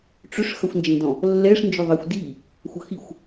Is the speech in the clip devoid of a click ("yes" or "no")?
yes